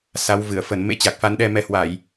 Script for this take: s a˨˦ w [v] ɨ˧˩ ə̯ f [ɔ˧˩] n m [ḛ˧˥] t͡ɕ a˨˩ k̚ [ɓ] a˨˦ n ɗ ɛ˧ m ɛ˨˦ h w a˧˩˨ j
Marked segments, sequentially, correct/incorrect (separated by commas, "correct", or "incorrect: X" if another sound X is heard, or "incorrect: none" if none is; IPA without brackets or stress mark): correct, incorrect: ə˧˩, correct, incorrect: f